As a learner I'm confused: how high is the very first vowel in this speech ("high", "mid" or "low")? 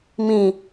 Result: high